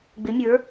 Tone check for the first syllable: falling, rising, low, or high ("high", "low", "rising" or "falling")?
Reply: rising